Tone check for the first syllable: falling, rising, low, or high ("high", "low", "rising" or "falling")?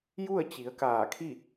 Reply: falling